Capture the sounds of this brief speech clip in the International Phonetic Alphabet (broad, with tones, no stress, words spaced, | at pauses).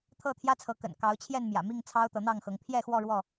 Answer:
t̪ʰɤ˥˨t̪ʰjä˦t͡sʰɤ˨˦ kə̰˨˩nkɑ˨˦ʊ̯t͡ɕʰjɛ˥˨nmjä̰˨˩ mi˥˨ŋ t͡sʰɑ˦ʊ̯t̪ɤ˨˦n̪ɑ˥˨ŋxɤ˨˦ŋ pʰjɛ˥˨xwɔ˥˨ɻwɔ˥˨